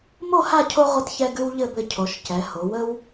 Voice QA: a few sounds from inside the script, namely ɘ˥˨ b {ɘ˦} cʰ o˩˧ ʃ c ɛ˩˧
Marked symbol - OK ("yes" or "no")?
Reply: yes